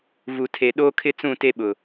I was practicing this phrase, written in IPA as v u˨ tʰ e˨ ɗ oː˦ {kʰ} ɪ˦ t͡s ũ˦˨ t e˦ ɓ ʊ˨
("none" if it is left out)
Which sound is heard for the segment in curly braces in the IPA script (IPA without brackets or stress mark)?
kʰ